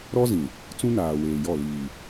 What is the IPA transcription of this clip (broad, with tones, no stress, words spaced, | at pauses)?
ɾɔ˦zĩ˨ | t͡sũ˦naː˨weː˨jɔ˦˨ liː˨